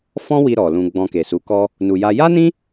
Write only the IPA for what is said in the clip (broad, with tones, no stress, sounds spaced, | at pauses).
f ɔ̃˦ w i˧ ɾ ɔ˨ l ũ˧ ɡ͡b ɔ̃˧ k e˨ s u˨˦ k ɔ˦ | n u˨ j a˧ j a˦ n ĩ˦